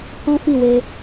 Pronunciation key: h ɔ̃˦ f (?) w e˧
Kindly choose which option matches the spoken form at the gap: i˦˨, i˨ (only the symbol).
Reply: i˦˨